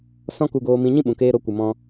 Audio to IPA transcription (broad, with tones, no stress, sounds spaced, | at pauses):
s ɔ̃˦ k u˧ ɡ oː˧ m ĩ˧ ɲ ĩ˦ ɓ ũ˨ k eː˧ ɾ o˨˦ kʷ ɨ˨ m ɔ̃˧